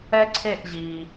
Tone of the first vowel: high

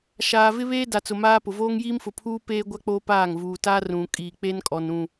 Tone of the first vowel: low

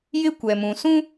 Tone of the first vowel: high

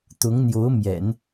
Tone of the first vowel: rising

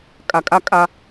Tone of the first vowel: low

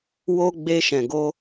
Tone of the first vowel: high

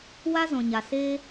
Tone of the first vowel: high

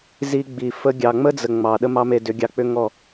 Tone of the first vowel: high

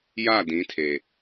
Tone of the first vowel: falling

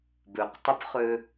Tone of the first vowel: low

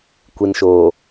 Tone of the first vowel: low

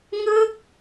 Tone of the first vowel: falling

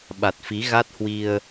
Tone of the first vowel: low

